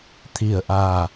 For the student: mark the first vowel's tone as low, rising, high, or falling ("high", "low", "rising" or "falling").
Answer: low